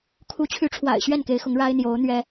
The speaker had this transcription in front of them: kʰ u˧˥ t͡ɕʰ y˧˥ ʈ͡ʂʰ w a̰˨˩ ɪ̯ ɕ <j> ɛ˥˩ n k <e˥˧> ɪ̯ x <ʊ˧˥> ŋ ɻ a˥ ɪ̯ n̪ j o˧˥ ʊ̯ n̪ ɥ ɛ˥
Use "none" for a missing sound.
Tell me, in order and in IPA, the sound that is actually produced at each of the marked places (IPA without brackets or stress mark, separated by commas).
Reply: ɥ, e˧˥, ʊ˧˥